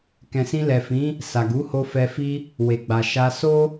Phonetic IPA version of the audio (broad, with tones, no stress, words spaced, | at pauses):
kɛ̃˨sĩ˧lɛ˨fĩ˨˦ | sa˨ɡu˨˦ho˧fɛ˧ fi˧ | we˨ɡ͡ba˨ʃa˧ so˦